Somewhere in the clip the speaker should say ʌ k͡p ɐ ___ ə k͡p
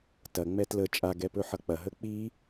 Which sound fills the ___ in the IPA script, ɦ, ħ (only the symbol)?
ɦ